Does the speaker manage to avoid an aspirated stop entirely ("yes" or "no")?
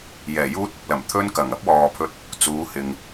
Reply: no